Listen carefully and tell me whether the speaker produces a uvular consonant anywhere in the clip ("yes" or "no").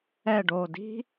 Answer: no